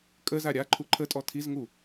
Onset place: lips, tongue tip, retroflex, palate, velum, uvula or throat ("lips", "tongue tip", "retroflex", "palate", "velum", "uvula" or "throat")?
velum